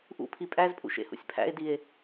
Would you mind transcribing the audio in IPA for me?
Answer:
ʔ ṵ pʰ i pʼ æ z pʼ ṵ ʃ ḛ h ṵ sʲ pʰ æ̰ e̯ d i e̯

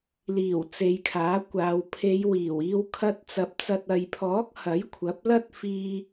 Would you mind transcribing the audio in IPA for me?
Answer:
l iː˨˩ w t͡s e˨˧ j kʰ aː˨˥ kʷ aː˨˧ w pʰ e˨˧ j w iː˨˩ w iː˧ w kʰ ɐ˧ t̚ t͡s ɐ˨˥ p̚ t͡s ɐ˨ t̚ ɐ˨ j pʰ ɔː˨˥ k̚ h ɐ˨˥ j kʷʰ ɐ˨˥ p̚ l ɐ˥ t̚ f iː˧

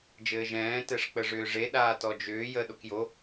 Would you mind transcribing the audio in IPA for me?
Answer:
d͡ʒ ɘː ʒ ɛ̃ː t ɛ ʂ k͡p ə ʐ ʏː ʐ e ɗ aː t ɔ d͡ʒ ʏː j ə ɗ o k j o

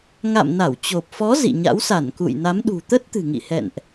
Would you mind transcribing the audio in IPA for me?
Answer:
ŋ a̰˧˨ m n a˧˩ w t͡ɕ o˨˩ p̚ f ɔ˨˦ z ḭ˧˨ ɲ a̰˧˥ w s a˧˩ n k ṵ˧˨ j n a˨˦ m ɗ ṳ˨˩ t̪ ə˦˥ t̚ t̪ ɨ̤˨˩ ŋ ḭ˧˨ h ɛ̰˧˨ n ʔ

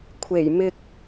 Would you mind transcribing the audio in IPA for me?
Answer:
kʷʰ e˨˩ j m ɪ˧ k̚

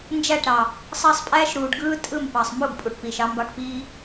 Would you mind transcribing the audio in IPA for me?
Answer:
n d͡ʒ æ˦˨ ʈ ɾ ɑ˨ | sˤ ɑ˦ sˤ pʼ æː˦ ʃ ɾ uː˨ ɖ ɡ ɯː˦ tʼ ɯ˦˨ m p ɑ˨ sˤ m u˦˨ ɡ pʼ u˨ ʈ p iː˨ ʃ ɑ˦ m b ɑ˦˨ ʈ p iː˦

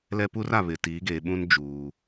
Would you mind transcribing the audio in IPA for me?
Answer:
l ɛ˦ p u˦ r a˨ β ɪ˨ t iː˨˦ ɡ eː˨ ɓ ũ˦ n d͡ʒ uː˨

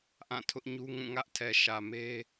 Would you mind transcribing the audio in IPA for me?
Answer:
ʔ ã˦˨ tʰ ʊ˦ ʔ ɲ u˦ ŋ ũ˦˨ ŋ ä˦ ʔ tʰ ɛ˨ ʃ ä˨ m e˦

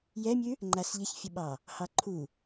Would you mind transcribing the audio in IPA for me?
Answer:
j ɛ mʲ ʉ | ŋ͡ǃ a s ʎ ɪ ç fʲ ə ɓ ɑ | h ɑ ǃʰ u

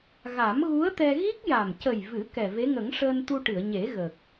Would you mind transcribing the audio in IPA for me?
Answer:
ɣ a˨˩˦ m ɣ u˧˥ ə̯ t̪ ɛ˧ ɣ i˦˥ k̚ j a˨˩ m c ə˨˩ j v ɨ˨˩˦ k ɛ˨˩ v e˧˥ ŋ ə˨˩˦ ŋ ʂ əː˧ n t̪ u˧ ʈ ɨ˨˩˨ ə̯ ɲ e˨˩˦ ɣ ə˨˩ k̚

